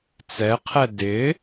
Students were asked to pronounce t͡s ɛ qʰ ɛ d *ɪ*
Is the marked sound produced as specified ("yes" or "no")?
yes